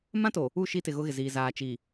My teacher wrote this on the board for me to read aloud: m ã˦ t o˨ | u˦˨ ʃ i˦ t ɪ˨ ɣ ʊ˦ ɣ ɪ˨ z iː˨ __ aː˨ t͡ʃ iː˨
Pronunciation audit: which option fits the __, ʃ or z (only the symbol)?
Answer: z